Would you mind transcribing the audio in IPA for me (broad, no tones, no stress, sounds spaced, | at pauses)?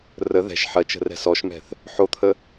r ə ð ɛ̤ ʃ ħ ɜ t͡ʃ ə̤ r ɛ̤ s ɔ ʃ m ɛ̤ θ | ħ o t̪ʰ ə